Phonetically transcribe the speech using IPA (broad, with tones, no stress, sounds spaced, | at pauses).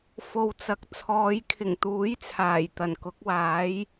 f o˨ w t͡s ɐ˨ k̚ t͡sʰ ɔː˨˧ j kʰ ɪ˨˩ ŋ t̪ uː˨˥ j t͡sʰ aː˨˩ j t̪ ɐ˨˩ n k ʊ˨˥ k̚ w aː˨˥ j